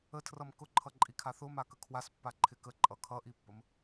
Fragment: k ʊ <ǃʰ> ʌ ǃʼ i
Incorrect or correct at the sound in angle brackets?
correct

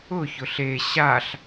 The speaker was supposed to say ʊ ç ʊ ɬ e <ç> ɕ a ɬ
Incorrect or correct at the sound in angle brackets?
incorrect: none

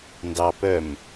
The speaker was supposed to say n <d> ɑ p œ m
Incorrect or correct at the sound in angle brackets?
correct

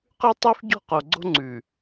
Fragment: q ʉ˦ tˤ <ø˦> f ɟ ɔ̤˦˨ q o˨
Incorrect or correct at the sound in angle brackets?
incorrect: ʉ˦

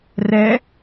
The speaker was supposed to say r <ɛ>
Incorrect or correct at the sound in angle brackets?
correct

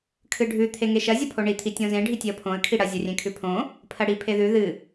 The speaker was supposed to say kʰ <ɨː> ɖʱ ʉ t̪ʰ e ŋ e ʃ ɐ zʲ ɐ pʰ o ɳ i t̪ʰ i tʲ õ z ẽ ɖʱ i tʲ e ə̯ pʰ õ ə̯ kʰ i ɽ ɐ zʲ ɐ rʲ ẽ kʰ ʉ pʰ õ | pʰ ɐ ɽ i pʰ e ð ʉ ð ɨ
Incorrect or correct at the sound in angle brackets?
incorrect: ɨ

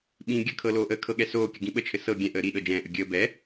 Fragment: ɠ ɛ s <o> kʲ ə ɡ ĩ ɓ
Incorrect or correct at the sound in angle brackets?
incorrect: oː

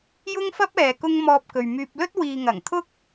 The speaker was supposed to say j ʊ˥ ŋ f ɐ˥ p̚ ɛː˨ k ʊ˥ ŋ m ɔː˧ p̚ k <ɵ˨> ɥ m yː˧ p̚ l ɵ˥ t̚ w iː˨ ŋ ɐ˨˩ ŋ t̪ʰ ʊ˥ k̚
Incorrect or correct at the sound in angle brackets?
correct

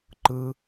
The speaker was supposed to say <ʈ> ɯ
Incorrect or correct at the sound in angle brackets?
incorrect: ǃ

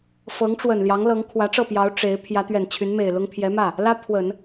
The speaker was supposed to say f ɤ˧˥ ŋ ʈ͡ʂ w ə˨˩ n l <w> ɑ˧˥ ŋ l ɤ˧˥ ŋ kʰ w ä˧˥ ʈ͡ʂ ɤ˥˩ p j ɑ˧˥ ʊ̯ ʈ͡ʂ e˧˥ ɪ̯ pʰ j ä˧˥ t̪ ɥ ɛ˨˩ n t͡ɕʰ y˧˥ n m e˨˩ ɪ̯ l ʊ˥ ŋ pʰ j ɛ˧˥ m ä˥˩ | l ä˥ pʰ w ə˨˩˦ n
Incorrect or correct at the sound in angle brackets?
incorrect: j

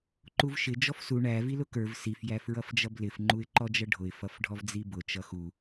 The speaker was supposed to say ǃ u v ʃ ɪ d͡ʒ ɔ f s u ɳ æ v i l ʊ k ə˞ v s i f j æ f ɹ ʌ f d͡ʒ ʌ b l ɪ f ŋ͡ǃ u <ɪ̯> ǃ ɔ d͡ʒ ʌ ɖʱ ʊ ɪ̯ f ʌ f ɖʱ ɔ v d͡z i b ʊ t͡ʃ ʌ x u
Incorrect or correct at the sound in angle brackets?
correct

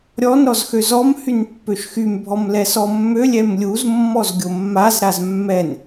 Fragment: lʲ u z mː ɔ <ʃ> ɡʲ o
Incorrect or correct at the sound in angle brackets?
incorrect: z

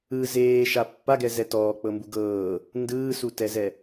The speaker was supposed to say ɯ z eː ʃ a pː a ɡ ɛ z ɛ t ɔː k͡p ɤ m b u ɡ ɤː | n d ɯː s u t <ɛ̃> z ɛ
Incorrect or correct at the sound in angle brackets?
incorrect: ɛ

